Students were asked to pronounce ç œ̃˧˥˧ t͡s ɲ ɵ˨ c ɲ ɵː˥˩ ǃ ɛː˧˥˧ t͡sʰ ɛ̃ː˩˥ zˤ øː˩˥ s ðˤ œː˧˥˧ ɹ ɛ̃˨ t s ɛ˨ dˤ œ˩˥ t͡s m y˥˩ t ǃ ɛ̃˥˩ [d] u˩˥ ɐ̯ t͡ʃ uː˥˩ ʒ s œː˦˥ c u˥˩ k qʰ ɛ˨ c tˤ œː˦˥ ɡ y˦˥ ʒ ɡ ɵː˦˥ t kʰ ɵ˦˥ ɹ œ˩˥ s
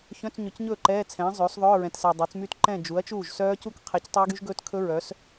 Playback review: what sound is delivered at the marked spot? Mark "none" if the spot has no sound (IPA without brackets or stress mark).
d͡ʒ